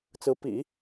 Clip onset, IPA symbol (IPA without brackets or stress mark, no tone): t͡s